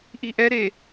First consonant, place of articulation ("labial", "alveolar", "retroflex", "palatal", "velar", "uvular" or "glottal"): glottal